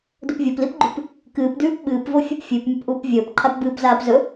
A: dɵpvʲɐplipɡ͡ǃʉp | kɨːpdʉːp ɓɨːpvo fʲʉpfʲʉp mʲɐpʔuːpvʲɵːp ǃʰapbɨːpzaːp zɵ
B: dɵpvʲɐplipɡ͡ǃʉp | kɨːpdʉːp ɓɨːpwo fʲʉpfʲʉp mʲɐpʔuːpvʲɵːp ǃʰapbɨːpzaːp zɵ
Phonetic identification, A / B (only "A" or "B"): A